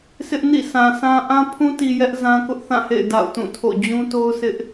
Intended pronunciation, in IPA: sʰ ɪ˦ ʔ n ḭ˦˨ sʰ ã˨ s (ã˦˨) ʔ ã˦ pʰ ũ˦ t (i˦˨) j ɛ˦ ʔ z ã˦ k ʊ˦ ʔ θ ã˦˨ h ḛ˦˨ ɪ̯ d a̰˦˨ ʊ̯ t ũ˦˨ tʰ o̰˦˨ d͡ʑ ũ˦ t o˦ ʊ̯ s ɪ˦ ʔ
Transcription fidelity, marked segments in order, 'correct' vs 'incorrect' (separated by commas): incorrect, incorrect